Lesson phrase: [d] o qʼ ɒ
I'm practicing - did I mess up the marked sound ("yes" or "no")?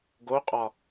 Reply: yes